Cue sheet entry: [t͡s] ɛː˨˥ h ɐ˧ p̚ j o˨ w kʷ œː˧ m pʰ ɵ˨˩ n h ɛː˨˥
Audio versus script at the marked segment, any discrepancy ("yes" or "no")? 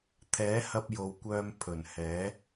yes